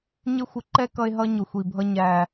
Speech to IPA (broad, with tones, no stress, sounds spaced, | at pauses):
ɲ ɪ˦ xʷ ɪ˧ ǃ ɛ˦ k ʌ˧ e̯ ɦ ʌ˧ ɲ ʊ˨ xʷ i˨ bʱ ʌ˧ ɲ æ˨